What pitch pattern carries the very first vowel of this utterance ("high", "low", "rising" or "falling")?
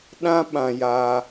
high